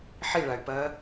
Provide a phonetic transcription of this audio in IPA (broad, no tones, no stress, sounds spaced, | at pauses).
ħ i ɭ a y̯ p ɐː